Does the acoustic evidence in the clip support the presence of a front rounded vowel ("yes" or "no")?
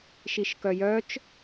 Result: yes